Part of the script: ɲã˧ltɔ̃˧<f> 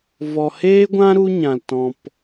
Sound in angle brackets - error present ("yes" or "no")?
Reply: yes